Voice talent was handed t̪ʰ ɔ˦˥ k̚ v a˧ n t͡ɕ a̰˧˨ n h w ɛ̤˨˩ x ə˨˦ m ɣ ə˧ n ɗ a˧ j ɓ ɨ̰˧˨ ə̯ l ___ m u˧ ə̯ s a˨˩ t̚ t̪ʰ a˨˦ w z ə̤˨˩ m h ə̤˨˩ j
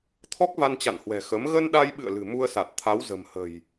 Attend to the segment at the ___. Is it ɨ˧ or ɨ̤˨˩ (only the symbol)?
ɨ̤˨˩